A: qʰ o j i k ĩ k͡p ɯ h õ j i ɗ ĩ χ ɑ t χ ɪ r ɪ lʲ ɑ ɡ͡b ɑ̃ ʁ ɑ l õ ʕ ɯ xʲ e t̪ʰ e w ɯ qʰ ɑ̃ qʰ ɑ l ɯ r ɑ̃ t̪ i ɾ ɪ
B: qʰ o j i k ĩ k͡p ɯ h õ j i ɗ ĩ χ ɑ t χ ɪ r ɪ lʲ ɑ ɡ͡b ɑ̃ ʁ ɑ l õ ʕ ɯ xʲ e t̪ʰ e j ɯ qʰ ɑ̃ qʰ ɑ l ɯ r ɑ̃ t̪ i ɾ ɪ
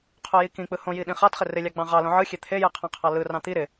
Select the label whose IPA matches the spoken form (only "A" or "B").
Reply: B